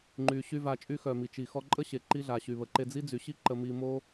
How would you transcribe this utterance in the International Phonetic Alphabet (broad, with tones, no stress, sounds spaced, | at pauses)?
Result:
ŋ͡ǃ yː˨ ɕ y˧ v aː˨ t͡ʃʼ y˧ x œː˨ m i˨ t͡ʃ i˨ x ɔ˧ ǃʼ ə˦ ɕ e˨ ǃ i˧ ɮ a˨ ɕ y˨ β ə˨ ǃ e˧ d͡z i˦ d͡z y˨ ɕ i˦ ǃ ə˧ m i˧ m o˦